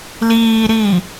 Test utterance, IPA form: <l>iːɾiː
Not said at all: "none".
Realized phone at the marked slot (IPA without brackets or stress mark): l